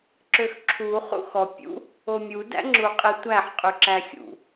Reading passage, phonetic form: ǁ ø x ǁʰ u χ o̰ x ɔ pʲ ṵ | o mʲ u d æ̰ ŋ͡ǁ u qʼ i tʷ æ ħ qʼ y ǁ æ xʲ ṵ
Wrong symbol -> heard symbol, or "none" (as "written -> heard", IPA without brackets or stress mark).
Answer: o̰ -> ṵ